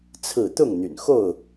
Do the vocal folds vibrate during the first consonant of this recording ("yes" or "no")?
no